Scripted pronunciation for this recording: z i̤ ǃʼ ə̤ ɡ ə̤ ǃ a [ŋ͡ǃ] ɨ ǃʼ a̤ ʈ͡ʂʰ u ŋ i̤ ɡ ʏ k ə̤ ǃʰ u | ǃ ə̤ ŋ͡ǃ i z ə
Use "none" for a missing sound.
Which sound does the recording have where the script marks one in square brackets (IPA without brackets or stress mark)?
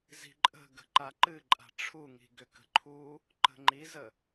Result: ǃ